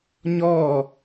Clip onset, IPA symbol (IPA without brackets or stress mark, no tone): ɲ